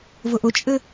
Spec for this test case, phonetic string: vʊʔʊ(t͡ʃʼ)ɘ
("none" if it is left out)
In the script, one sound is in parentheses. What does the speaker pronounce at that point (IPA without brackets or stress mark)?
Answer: t͡ʃʼ